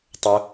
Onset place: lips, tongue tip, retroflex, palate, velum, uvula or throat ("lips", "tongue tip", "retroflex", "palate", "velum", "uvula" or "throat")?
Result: tongue tip